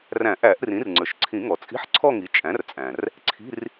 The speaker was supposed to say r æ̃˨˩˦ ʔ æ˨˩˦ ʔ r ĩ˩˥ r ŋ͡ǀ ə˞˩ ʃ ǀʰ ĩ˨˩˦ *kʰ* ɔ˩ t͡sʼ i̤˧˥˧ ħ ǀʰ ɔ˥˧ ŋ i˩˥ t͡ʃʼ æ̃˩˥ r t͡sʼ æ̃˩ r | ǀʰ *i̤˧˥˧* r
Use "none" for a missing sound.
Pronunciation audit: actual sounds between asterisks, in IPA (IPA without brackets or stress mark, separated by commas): ŋ, i̤˧˥˧